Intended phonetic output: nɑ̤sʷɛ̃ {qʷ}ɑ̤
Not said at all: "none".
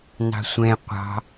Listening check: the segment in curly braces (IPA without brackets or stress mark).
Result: qʷ